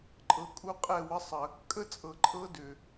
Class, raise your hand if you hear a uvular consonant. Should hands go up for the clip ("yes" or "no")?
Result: yes